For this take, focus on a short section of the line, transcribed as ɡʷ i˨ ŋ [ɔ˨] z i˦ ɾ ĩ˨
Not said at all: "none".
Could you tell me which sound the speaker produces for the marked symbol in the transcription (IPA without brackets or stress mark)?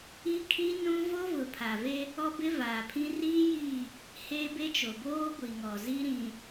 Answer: ɔ˨